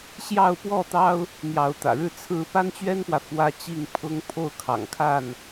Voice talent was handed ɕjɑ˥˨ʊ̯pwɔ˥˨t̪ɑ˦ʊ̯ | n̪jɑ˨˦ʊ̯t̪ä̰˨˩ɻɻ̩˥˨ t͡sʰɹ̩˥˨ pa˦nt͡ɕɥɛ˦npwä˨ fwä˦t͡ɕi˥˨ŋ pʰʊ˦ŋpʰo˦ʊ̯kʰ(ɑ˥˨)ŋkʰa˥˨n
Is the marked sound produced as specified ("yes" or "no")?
no